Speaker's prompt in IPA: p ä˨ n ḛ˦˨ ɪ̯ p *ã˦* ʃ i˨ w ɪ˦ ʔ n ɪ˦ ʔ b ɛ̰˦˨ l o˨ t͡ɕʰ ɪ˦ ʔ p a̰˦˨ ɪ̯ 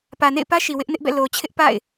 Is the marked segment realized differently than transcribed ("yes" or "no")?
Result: yes